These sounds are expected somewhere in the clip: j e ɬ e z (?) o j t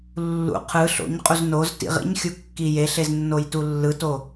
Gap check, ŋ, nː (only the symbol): nː